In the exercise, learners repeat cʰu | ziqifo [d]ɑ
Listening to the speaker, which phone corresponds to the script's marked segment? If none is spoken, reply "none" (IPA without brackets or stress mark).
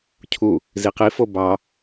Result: b